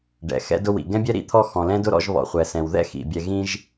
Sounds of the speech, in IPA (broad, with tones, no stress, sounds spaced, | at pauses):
ɖ ɛ̰˩ x ɛ̰˦ d ʊ˦ w ḭ˩ ɡ ɛ̃˥ bʲ ɛ˥ ɾ ḭ˦ t̪ʰ ɔ˦ x ɔ̃˨ l ɛ̃˥ d ʊ˥ ɾ ɔ̰˦ ʒ β ɔ̰˨ χʷ ɛ˩ s ɛ̃˩ w ð ɛ̰˥ x ḭ˩ bʲ ɛ˨ ɣ ĩ˦ ʒ